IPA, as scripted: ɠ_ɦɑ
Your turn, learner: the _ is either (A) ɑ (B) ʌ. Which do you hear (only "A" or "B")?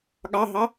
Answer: A